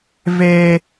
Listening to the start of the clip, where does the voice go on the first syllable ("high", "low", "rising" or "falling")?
high